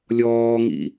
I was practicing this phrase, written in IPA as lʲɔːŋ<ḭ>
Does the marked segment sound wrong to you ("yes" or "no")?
no